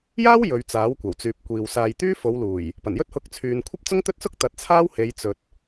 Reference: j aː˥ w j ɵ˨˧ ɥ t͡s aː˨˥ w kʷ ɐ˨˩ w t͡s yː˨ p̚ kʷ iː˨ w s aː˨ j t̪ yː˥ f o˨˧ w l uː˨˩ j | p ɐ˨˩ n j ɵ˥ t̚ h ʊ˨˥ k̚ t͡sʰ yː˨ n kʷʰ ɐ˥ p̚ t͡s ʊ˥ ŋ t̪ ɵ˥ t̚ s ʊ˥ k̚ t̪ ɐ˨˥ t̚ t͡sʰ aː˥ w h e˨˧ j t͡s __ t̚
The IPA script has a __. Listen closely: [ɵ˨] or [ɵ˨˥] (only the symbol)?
ɵ˨